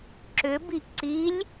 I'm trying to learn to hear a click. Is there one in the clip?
yes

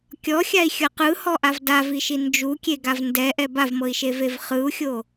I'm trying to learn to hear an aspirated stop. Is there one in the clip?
no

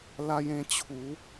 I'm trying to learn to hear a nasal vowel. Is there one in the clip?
yes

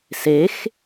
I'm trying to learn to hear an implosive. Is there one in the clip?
no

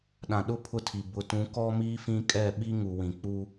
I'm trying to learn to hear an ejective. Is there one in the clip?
yes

